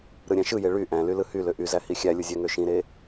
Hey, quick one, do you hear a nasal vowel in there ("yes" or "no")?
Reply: yes